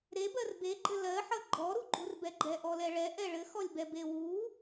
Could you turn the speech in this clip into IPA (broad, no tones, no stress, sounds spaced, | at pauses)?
ɾ e b ɜ r b e ɡ͡ǃ ɘ l ɜ ħ ʌ ɡ͡ǃ ɔ ɾ u ɡ͡ǃ u r b ɛ ɡ͡ǃ ɛ ʔ ɔ l ɛ ɭ ɛ ʔ ɛ ɭ ɘ x ɔ lʲ b ɛ b e w u